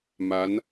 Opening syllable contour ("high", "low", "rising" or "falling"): rising